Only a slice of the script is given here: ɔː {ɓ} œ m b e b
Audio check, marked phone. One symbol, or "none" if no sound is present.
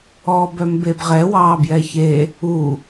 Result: b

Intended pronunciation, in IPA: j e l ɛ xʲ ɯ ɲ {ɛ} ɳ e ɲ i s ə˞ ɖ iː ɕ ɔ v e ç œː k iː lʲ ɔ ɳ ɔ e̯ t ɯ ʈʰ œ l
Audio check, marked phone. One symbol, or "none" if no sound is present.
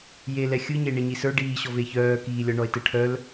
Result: e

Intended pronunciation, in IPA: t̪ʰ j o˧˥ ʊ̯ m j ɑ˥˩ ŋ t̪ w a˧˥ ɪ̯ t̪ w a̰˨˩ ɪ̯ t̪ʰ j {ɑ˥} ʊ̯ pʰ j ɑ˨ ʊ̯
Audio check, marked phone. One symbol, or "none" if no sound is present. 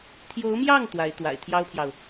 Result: ɑ˥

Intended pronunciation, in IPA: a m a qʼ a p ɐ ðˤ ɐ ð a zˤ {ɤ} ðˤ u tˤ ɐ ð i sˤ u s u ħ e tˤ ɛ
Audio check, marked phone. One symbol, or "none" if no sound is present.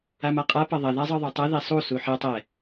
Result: ɤ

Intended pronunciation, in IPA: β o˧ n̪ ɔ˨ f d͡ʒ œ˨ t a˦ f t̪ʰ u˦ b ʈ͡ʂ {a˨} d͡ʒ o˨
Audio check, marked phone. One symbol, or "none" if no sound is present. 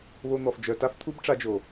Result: a˧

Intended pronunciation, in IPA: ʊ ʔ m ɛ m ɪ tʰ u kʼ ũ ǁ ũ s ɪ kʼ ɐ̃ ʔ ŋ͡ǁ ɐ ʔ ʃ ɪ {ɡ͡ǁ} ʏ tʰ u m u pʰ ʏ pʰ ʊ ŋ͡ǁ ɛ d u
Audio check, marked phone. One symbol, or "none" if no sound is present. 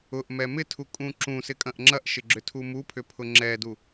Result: ɡ͡ǁ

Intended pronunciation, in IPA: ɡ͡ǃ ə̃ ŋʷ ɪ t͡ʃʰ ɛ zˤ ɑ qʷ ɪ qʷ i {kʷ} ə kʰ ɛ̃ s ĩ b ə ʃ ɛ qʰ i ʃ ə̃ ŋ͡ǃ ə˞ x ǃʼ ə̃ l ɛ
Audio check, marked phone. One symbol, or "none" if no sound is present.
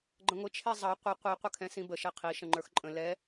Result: qʷ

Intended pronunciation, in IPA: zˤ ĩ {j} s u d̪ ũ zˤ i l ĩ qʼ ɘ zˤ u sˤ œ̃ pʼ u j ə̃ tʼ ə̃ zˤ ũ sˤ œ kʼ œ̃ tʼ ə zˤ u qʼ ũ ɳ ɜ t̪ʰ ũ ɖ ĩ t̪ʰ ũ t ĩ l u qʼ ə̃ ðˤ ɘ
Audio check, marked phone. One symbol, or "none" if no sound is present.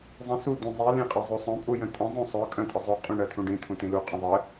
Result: none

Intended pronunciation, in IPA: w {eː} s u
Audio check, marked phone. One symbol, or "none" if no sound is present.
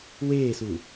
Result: eː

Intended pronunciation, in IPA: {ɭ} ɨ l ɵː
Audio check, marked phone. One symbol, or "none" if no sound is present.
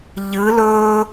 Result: ʎ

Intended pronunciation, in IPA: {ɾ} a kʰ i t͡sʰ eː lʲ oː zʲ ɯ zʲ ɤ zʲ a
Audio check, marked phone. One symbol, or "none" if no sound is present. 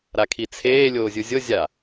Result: ɾ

